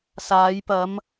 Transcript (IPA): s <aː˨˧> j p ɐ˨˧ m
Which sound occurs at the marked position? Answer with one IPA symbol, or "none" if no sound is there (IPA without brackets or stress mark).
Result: aː˨˧